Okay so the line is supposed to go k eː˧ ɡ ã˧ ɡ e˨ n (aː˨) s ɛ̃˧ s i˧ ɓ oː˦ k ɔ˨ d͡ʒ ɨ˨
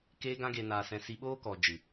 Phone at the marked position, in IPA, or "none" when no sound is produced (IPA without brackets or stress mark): aː˨